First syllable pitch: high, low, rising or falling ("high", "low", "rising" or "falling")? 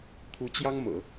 rising